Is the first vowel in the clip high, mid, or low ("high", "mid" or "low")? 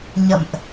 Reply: mid